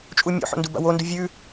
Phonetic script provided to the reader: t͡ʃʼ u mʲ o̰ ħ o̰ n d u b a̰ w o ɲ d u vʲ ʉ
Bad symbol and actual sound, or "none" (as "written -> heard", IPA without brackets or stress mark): ɲ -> n